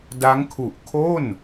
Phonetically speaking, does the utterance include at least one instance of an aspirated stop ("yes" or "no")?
yes